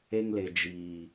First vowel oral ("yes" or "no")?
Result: yes